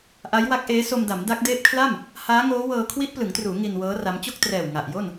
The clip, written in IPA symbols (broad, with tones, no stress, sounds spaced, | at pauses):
ʔ a˦˥ j w a˦˥ k̚ ʔ eː˦˥ s o˧ m d a˩˦ m d a˦˥ k̚ d eː˦˥ p̚ kʰ l a˥˩ m | h aː˦˥ ŋ oː˦˥ w ɤː˧ kʰ w i˦˥ ʔ p l ɯ˩˦ ŋ t r uː˩˦ ŋ i˧ n w ɤː˦˥ r a˦˥ m t͡ɕ o˥˩ k̚ t r ɛː˨˩ w ŋ a˨˩ ʔ j o˥˩ n